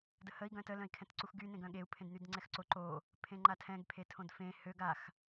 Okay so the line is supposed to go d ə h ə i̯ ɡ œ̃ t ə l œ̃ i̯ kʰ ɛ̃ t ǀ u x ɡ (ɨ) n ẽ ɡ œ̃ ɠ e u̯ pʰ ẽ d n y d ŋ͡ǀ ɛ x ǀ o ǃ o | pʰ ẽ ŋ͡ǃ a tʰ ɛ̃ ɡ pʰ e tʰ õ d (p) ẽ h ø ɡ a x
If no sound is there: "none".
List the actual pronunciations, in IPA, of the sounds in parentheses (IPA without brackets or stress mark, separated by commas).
y, f